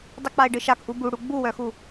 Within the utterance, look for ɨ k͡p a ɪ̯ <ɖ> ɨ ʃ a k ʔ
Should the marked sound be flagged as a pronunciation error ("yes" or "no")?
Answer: no